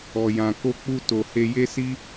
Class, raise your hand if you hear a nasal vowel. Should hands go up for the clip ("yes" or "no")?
yes